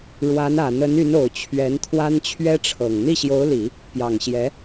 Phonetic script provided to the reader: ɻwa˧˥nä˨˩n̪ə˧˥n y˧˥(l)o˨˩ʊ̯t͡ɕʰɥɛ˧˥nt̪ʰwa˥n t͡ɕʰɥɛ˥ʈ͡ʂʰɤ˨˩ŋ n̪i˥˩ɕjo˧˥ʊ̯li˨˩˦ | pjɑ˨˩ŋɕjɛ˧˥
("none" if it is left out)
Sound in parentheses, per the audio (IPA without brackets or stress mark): n